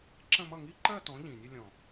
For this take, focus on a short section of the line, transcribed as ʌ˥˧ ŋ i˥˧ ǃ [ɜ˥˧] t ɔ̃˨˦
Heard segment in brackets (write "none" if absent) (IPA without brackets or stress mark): ɜ˥˧